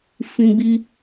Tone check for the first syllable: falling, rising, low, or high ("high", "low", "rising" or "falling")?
high